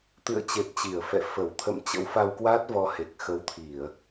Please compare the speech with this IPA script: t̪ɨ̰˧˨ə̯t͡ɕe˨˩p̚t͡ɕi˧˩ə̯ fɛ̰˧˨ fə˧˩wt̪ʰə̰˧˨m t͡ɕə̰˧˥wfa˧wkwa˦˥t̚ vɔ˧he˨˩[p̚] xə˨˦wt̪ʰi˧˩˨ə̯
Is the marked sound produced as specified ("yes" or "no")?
no